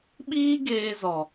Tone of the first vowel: high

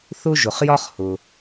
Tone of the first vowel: high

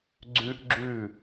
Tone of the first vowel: high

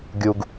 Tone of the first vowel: low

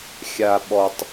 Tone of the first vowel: low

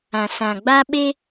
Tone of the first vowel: low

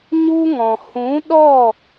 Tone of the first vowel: high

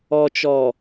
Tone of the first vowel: low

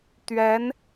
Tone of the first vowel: rising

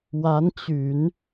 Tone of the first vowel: rising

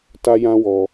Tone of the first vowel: high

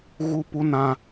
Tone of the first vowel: high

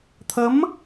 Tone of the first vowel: rising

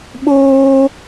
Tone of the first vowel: high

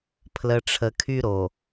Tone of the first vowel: low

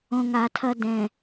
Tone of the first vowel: low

